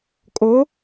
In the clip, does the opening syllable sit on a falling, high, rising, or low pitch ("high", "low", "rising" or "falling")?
rising